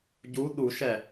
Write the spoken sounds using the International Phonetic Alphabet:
ɟ u ɗ u ʃ ɛ

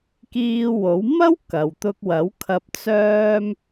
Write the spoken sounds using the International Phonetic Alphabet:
k iː˧ w o˨˥ w m ɐ˥ w k ɐ˨ w t̪ ʊ˧ k̚ w ɐ˨˥ w kʰ ɐ˧ p̚ t͡s œː˥ m

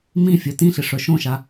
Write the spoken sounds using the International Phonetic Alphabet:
m ĩ fʲ œ t ĩ ɬ ɪ ʂ œ ʃ õ ʃ a

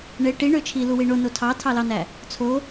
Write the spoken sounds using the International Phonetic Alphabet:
ɳ e ʈ i ɳ ø t͡ʃʰ i l u w i ɳ o n o tʰ ɑ tʰ ɑ l ɑ n æ | t͡sʰ o

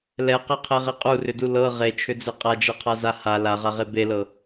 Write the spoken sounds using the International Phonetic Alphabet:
l ɛ q e qʰ e ʁ e qʼ u r ʏ d u l ɤ ʁ e t͡ʃʰ ʏ d͡z e qʼ a d͡ʒ ɛ qʰ a z a h a l a ʁ a ʁ e b e l ɤ

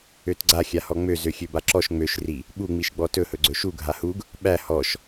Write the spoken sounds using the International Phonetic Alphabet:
ø t ɡ͡ǀ a xʲ a h ɔ ŋ͡m ø z ø xʲ ø b a ǁ ɔ ʃ ŋ͡m ø ʃ r i | ɓ u ŋ͡m i ʃ ɡ͡b ɔ t ɵ h ɵ ɡ͡ǀ ɵ ʃ u ɡʱ a h u ɡ | ɓ æ h ɔ ʃ

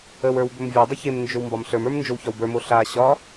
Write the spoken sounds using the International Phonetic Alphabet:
ə w ə˞ w b ɵ m vʲ o dˤ ɵ ç e m n d͡ʒ ɵ w m b ɒ m ɬ ə˞ m ə˞ m n d͡ʒ o w ç ɒ w b ə˞ m o ɬ a ɕ ɒ

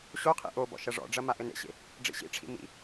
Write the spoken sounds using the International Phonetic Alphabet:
ɕ o qʰ ḭ ʔ o b ɔ̰ ʃ ɐ ʐ ɔ̰ ɖ͡ʐ ɐ m a ʔ ɘ n ḛ ɕ ḛ | ɖ͡ʐ ḭ ɕ ḭ ʈ͡ʂʰ ḭ m ḭ

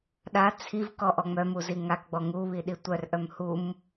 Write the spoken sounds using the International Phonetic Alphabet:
ɗ a t͡sʰ i v k ɔ ʔ ɔ ŋ͡m œ m u z i ŋ a k ɡ͡b ɔ ŋ u β i ɗ i tʷ œ r ʔ œ m h u m

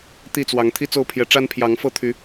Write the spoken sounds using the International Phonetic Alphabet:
t̪ i˥˨ t͡s w ɑ˨˦ ŋ t̪ʰ i˦ t͡s o˥˨ ʊ̯ pʰ j ɛ˨˦ ʈ͡ʂ a˦ n pʰ j ɑ˨˦ ŋ f ɤ˥˨ t̪ʰ y˨˦

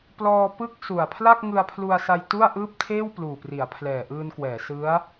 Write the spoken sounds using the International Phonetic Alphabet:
p l ɔː˧ p ɯ˥˩ k̚ s u˨˩ a̯ pʰ l a˥˩ k̚ ŋ ɯ˧ a̯ pʰ l u˧ a̯ s a˧ j t u˥˩ a̯ ʔ ɯː˥˩ p̚ tʰ eː˥˩ w p l uː˨˩ p r i˩˦ a̯ pʰ l ɛː˨˩ ʔ ɯː˧ n k w ɛː˩˦ s ɯ˦˥ a̯

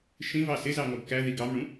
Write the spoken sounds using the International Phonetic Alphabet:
ʃ ĩ v ɑ s ɪ z ɑ ŋ ɔ ɡ k æ ð i ɡ ɑ m ɳ ũ

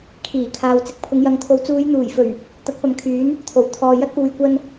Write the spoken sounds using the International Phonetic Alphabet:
kʰ iː˨˩ kʰ aː˨ w t͡s ɪ˨˥ k̚ pʰ ʊ˨˧ ŋ j ɐ˨˧ ŋ t̪ʰ o˨˧ w t͡s uː˨˧ j n̪ uː˨˩ j f ɵ˨˩ ɥ | t̪ ɐ˨˥ k̚ p ɐ˨ m kʰ yː˨˥ n | t̪ʰ o˨˩ w t̪ʰ ɔː˨ j ɐ˧ t̚ p uː˨ j kʷ ɐ˧ n

